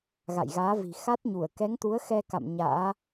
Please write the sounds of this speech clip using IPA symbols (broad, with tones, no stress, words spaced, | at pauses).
ɣa̰˧˨jɣaː˨˦vi̤˨˩ xa˦˥t̚ɲu˧˩ə̯ kɛ˨˦ŋt̪u˨˦ə̯xɛ˧ ka̰˧˨m ɲa̰ː˧˥